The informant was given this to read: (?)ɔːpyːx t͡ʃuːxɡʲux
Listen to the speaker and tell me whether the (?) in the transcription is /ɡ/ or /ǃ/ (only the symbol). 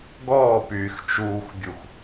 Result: ɡ